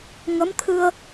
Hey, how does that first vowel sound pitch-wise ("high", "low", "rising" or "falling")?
rising